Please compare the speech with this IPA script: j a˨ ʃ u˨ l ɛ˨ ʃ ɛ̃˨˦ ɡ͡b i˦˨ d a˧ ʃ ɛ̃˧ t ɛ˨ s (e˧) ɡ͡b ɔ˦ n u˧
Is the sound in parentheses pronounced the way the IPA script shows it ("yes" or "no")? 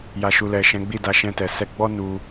no